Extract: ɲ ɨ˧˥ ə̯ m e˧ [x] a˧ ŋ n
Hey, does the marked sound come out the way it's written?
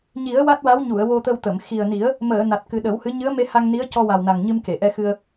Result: no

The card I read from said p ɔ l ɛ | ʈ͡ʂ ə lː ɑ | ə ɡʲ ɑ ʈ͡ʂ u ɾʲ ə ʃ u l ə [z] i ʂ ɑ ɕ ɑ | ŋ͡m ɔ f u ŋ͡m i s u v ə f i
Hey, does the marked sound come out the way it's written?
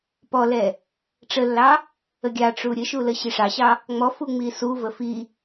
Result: no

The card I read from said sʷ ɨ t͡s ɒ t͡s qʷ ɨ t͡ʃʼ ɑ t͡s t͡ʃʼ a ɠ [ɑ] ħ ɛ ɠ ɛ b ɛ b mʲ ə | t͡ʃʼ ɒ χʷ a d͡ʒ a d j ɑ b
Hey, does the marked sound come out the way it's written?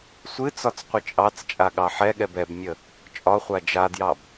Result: yes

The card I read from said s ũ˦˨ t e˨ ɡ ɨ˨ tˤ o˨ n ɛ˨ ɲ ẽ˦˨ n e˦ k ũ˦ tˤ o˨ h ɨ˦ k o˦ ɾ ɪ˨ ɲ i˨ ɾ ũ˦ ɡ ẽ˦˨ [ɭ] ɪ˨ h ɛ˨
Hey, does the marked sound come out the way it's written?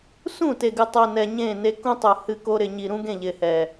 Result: no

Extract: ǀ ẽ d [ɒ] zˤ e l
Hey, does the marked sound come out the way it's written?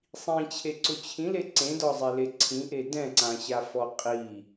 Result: yes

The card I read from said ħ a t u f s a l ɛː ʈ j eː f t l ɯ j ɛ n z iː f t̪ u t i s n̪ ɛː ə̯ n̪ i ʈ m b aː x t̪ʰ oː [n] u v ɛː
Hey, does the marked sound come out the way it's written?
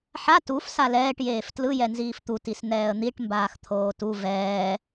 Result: no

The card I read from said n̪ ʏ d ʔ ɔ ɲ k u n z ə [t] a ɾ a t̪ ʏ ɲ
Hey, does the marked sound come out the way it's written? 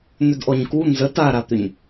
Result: yes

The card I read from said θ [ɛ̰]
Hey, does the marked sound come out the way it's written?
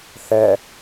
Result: no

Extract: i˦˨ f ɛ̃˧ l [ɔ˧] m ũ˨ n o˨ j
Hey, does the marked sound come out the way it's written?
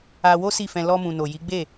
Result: yes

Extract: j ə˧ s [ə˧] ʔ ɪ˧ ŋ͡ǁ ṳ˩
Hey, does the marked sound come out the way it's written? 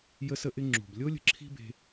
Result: yes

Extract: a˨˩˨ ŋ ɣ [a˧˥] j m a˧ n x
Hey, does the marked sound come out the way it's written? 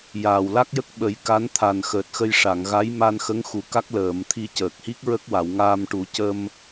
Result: yes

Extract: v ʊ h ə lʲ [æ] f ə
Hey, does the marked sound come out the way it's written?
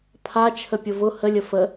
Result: no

